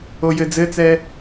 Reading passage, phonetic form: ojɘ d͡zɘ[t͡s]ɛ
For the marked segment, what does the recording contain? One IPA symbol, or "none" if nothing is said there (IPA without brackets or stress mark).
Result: t͡s